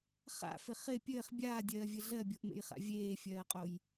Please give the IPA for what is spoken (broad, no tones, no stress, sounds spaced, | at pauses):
χ a̰ f ɪ χ ɪ pʲ ɘː χ bʲ aː dʲ ɜː vʲ ɘ ɮ ɜ bʲ o ʔ m ḛ j χ a̰ vʲ eː fʲ ɜː qʼ o j